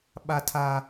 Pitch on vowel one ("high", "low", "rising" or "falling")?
high